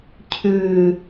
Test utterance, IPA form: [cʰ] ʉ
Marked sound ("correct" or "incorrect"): correct